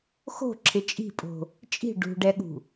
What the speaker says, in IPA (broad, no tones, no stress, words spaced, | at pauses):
xo̤ǁʰɪ t͡ʃʼi̤pʼo̤ | t͡ʃʼi̤ ɖṳɖɛɠṳ